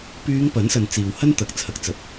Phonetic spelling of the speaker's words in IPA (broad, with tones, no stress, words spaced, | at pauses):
pyː˨˧ŋ pɐ˨˥nsɐ˨˧n t͡siː˨w hɐ˥nt̪ɐ˨˥k̚t͡sʰɐ˨˥k̚ t͡sɐ˨˥p̚